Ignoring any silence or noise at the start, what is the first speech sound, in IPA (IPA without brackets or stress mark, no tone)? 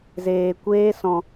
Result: z